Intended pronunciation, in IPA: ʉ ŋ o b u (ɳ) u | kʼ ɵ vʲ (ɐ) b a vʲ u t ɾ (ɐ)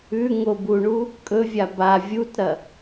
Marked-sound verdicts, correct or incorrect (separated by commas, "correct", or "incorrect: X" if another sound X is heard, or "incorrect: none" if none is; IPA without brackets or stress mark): correct, incorrect: a, correct